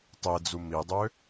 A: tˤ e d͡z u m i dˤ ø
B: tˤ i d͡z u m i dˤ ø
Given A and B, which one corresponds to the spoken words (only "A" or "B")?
A